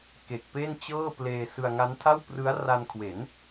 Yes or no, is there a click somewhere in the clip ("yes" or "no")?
no